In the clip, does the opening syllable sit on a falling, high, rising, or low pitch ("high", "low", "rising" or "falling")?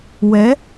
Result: rising